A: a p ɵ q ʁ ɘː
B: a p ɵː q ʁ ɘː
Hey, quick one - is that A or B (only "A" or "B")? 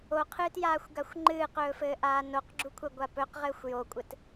A